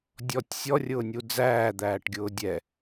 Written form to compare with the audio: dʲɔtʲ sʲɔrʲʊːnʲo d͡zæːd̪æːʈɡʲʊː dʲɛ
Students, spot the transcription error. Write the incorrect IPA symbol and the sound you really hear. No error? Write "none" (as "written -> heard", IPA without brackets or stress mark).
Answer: o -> u